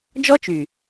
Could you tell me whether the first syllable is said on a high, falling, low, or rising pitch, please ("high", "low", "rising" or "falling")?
high